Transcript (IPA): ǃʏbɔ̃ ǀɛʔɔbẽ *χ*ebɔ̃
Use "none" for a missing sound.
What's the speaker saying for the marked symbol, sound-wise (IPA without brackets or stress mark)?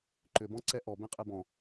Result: qʼ